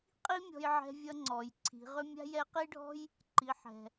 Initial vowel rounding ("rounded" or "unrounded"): unrounded